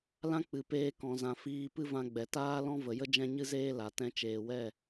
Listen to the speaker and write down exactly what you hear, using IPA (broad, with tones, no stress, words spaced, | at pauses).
lã˦ k͡pɨ˨peː˧kɔ̃˨zã˨ fiː˧ pɨ˦vã˧ɡ͡bɛ˨ taː˦lɔ̃˦və˨jə˦ d͡ʒɛ̃˦ɲɨ˦zeː˦la˨ tɛ̃˧t͡ʃeː˨wɛ˦˨